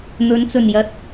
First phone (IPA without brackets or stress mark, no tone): n̪